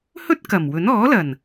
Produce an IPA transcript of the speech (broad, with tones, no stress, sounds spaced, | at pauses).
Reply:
h ɵ˥ t̚ k ɐ˨˩ m w ɵ˨˥ n ɔː˨˥ l ɐ˨˩ n